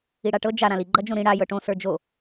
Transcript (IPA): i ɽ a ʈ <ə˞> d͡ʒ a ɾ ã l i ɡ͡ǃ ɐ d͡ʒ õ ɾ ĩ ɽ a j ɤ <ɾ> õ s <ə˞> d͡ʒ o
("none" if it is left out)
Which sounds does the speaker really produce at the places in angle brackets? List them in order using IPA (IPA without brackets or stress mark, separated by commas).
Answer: ɤ, ʈ, ə˞